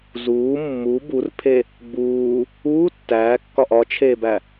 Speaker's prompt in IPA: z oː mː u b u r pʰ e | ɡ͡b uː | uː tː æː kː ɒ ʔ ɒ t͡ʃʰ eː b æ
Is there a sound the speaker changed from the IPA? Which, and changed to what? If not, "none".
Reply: oː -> uː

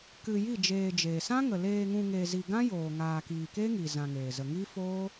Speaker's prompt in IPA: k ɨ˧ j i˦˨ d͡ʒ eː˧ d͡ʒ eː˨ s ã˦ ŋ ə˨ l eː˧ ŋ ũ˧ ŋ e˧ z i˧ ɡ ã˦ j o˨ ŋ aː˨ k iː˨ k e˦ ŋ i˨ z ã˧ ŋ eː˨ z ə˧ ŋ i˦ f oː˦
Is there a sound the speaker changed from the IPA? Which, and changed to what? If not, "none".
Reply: o˨ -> oː˨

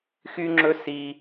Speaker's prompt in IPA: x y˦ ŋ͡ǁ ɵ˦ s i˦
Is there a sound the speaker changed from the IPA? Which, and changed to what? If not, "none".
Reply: none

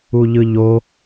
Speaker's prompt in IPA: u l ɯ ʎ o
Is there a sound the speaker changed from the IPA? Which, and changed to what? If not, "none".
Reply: l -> ʎ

